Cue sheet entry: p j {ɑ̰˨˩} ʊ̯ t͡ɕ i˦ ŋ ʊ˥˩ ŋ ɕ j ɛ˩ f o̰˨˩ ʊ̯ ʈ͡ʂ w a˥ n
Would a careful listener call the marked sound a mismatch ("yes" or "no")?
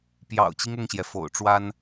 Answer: no